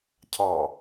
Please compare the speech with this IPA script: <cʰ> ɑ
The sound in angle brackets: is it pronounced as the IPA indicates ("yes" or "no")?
yes